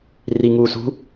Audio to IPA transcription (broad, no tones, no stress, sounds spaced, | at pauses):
r i ŋ uː s ṳ